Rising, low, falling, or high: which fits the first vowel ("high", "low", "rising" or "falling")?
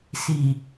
low